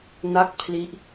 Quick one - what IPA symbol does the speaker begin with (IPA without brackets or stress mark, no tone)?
n